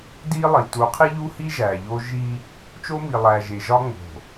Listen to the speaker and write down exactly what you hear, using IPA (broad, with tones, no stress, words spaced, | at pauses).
di˦lˠi˨ tu˨˦qʰi˦ʎu˦hi˦ ʒæ˨ʎo˦ ʒi˦ | t͡ʃo˦mi˨ lˠæ˨ʒe˨ʒɒ˦ ŋ͡mo̤˨